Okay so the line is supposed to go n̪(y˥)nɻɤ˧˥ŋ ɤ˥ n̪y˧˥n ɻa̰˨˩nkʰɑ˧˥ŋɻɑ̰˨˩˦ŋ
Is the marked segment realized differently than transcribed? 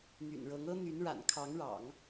yes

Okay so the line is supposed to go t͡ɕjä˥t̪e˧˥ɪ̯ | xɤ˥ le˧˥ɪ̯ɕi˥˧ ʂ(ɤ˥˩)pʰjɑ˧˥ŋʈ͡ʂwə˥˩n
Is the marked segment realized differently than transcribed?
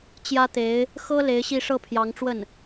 no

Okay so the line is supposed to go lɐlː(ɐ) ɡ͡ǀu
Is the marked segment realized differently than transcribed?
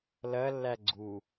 yes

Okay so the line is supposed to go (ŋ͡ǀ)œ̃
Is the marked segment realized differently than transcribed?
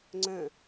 no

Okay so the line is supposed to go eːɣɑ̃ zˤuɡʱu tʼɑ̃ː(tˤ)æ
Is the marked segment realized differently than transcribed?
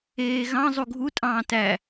yes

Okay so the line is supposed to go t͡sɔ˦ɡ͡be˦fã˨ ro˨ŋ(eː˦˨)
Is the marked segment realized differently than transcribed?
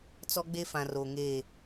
no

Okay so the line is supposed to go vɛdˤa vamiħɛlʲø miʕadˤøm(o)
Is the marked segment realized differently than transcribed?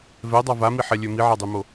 no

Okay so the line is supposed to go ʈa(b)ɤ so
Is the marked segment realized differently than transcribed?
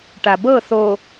no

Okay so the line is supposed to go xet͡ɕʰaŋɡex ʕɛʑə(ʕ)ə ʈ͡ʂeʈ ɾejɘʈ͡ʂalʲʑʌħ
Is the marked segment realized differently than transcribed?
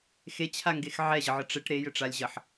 no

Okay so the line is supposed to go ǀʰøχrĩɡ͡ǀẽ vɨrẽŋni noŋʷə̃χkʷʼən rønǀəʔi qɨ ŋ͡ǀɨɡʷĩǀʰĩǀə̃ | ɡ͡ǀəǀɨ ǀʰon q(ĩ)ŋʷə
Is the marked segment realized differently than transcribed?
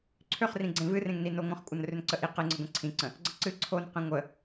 yes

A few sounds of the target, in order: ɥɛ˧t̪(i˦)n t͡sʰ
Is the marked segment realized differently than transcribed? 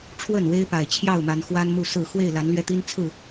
no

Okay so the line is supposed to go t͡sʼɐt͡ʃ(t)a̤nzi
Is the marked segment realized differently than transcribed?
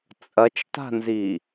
no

